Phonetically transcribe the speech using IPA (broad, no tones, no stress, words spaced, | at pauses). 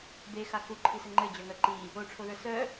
bexa xuǃʰisɘ ŋ͡ǃɘd͡ʑœŋœ ǃi | oʈ͡ʂʰoðə˞ sœ